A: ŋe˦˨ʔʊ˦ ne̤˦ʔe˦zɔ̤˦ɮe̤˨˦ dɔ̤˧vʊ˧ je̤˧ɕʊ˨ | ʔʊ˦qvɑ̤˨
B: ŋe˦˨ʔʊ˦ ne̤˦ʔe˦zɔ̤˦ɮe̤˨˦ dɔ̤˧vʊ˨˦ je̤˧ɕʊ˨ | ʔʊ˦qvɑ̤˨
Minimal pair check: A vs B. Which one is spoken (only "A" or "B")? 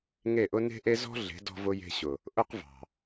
A